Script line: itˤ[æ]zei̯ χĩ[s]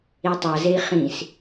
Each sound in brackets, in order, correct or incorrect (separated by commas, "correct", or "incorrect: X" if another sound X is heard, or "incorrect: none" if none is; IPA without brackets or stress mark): incorrect: a, correct